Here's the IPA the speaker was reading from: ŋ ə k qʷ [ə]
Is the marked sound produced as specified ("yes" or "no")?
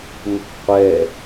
no